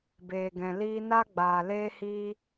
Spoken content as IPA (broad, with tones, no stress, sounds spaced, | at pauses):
b eː˨ ɡ ɛ̃˨ l iː˧ n a˦ ɡ͡b aː˨ l eː˦ h iː˦